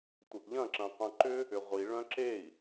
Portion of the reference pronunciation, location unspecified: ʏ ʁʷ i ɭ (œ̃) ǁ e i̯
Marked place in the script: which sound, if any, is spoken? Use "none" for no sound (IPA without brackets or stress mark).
œ̃